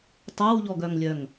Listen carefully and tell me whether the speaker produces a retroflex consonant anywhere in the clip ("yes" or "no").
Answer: no